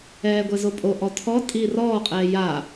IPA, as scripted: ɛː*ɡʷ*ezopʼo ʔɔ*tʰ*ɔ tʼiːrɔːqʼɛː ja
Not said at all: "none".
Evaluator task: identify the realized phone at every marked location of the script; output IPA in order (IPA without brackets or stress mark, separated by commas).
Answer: ɡʷ, tʰ